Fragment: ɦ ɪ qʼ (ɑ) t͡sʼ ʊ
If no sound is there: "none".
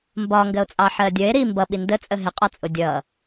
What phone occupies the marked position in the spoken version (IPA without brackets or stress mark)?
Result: ɒ